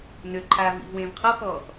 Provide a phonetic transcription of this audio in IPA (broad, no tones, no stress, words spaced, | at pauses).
nøǃʰaː vḭvwẽːv qʰɔxɔːx